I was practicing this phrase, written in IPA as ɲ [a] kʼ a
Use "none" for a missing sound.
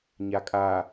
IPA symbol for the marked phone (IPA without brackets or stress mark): a